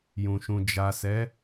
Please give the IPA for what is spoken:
j ũ˨ ʃ ũ˨ d͡ʒ a˨ s ɛ˨˦

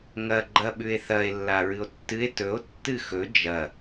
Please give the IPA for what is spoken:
ŋ ɐ ɡ͡ǃ ɐ ɓ ʉ e̯ θ ɐ e̯ lː a ɹ ɨ o̯ tː ɨ e̯ t ɵ o̯ tː ɨ x ɵ d͡ʒ ɐ

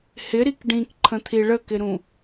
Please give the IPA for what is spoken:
h ɪ ɾ i k ɖ ĩ k ǃʰ ə̃ t̪ʰ i ɭ ə k ɪ ɾ ũ

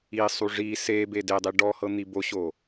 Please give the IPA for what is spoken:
i sˤ u ʐ i s e b e d e dˤ i ɖ ɔ h ɤ n̪ i b o ɕ o

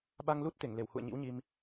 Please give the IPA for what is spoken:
ɓ a˧ ŋ l u˦˥ t̚ t̪ e˧˩ ŋ l e˧˩ w h ṵ˧˨ ə̯ ɲ ḭ˧˥ w ɲ i˧ m

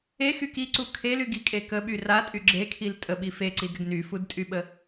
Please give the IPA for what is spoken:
e x y k i ǀ u kʰ e l y ɡ i kʼ e k ə ɓ y r a tʼ y ɡ͡ǁ e kʰ i l tʼ ə ɓ i f e ǀ i d ɾ ə ɡ n y f u d tʼ y ɓ ə

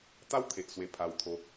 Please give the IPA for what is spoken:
t̪ a˦ w t̪ʰ e˨ ʔ s w e˧ pʰ a˧ w t̪ʰ o˧

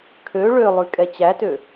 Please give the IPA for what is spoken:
kʰ ø ɭ ø lˠ ʉ kʼ ɛ t͡ɕ æ t ø

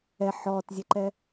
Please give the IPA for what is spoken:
ɛ ħ ɔː t zʲ e ǃ ɛ

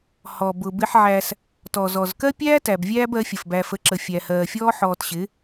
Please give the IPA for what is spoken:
h ɔ˨ b ʊ˨ b ɪ˦ ħ ʕ æ˦ s | t ɔ˨ z ɔ˨ z k ɜ˦ pʲ æː˦ t æ˨ b vʲ æː˦ b ɜ˨˦ fʲ ə˨ f b æ˨ f ə˨ ǁ ə˨ fʲ æ˨ h ɜː˨ fʲ ɔː˦ ħ ɔː˨ t ɕ ɪ˨˦

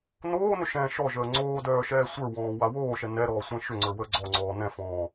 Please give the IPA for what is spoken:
n oː n ʏ ʃ ɛ̃ ʃ ɔ ʒ əː ŋ͡ǀ oː d œː ʃ ɛː sʷ ə˞ w ɔ̃ː w a w oː ʃ ɛ n ɛ ɾ ɔː sʷ ɛ̃ ʃ ʏ ŋ͡ǀ ə˞ w əː ɡ͡ǀ ɔ ŋ͡ǀ ɔː n ɛ̃ f ɔ̃ː

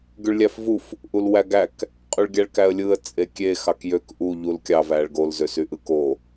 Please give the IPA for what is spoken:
ɡ y ɭ lʲ æ f v u f | ʔ u l w æ ɡ æ k | qʼ y ɭ ɡʲ æ ɭ k æ ə̯ lʲ ɯ ə̯ t͡sʼ e kʲ e x ɑ k j ø k ʔ u ʎ u l kʲ ɑ v æ ɭ ɡ o l z ø s y ʔ ɯ k o

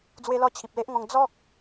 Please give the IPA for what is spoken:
d͡z w e˧ l ɔ˧ t͡ɕʰ i˨ p̚ l e˦ ʔ ŋ ɔ̃˧ ŋ d͡z ɔ˦ k̚

